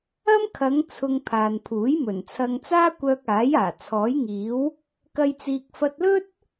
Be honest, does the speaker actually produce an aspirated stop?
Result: yes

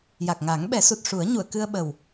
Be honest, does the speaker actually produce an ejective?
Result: no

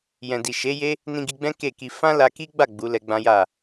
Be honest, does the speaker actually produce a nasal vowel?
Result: yes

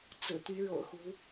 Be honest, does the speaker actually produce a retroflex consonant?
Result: yes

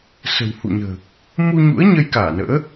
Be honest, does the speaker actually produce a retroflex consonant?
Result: no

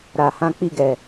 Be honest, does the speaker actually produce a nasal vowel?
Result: yes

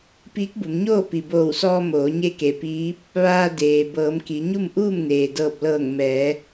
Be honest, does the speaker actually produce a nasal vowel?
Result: no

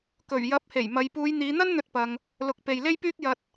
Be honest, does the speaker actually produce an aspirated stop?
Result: no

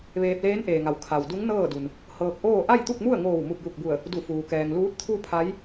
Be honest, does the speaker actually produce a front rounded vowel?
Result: no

